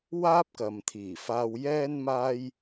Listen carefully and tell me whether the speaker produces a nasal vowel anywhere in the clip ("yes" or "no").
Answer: no